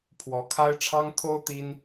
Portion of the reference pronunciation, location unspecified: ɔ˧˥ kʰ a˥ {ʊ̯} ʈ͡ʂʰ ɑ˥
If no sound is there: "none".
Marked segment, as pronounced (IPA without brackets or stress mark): ɪ̯